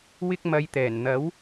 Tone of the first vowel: high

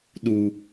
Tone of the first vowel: low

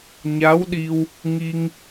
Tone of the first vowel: rising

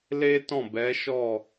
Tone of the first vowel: high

